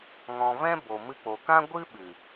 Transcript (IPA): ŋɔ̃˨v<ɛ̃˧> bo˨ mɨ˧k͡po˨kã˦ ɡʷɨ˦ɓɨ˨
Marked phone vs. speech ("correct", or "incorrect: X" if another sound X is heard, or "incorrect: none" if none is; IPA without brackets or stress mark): incorrect: ɛ̃˦